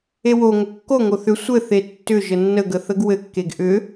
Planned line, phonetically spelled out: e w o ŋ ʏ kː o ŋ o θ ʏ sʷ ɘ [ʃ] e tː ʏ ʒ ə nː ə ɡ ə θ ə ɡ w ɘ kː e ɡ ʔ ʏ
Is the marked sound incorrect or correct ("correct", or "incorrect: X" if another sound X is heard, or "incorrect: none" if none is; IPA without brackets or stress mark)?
incorrect: θ